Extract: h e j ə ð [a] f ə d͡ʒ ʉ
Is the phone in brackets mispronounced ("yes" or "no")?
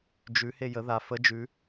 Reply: no